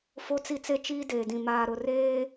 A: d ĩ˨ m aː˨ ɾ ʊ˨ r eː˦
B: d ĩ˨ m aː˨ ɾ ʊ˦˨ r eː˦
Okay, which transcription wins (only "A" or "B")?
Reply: A